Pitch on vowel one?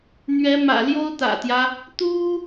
rising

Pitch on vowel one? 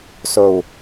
low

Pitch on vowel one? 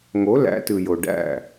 rising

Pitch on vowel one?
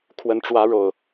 rising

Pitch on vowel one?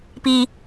low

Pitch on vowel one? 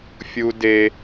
high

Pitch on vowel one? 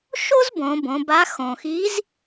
high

